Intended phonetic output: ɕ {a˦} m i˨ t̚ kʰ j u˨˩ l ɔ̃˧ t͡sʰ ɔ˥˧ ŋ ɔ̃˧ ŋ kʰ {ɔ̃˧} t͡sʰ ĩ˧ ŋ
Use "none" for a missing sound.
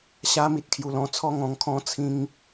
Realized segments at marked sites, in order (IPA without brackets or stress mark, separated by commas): a˧, ɔ̃˦